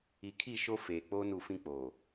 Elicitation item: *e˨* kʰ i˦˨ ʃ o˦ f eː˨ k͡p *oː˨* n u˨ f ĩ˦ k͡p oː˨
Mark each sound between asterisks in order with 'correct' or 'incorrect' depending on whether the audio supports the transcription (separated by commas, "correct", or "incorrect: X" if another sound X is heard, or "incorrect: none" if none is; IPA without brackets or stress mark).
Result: incorrect: i˨, incorrect: oː˦